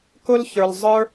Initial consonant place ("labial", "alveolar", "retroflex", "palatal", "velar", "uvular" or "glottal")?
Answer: velar